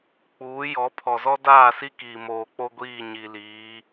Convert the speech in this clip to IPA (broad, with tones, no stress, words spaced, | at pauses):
k͡puː˨˦ jɔ˨˦ pʰɔ˨zɔ˦daː˦˨si˦ kiː˨moː˨k͡po˦ ɡʷiː˦˨ɲi˨liː˨˦